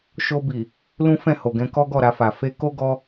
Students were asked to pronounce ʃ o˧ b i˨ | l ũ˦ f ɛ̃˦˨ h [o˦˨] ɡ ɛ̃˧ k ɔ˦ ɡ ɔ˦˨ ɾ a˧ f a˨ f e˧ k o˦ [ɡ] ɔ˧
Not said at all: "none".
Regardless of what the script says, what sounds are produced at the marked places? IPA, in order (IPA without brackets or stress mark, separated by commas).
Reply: o˨, ɡ